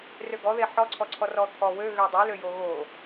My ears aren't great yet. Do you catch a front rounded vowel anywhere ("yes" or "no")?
yes